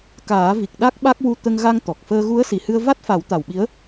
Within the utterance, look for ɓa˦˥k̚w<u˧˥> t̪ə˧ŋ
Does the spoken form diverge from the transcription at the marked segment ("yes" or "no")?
yes